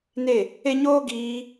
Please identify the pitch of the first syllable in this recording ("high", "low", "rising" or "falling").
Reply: falling